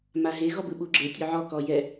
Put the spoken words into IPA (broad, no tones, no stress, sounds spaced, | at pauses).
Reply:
m a ɦ e ɣ ɔ b ɯ ɓ u ɡ͡ǁ e tʲ o ʕ ɔ k ɔ j ɛ